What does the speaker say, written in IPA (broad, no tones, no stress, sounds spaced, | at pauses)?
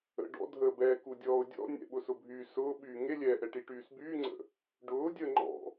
ə̰ ɖ ɔ̰ dʱ əː b ɛː k u dʲ ɔː ʊ̯ dʲ ɔ̰ nʲ ɛ̰ ɓ ʊ s ʊ bʱ y s ʊː ɓ yː ŋ e lʲ ɛː ʔ ɛ ʈ i ʈ yː s b yː ŋ͡ǀ ə̰ | ɖ ʊː dʲ əː ŋ͡ǃ ɔ̰